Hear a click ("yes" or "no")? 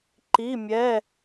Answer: yes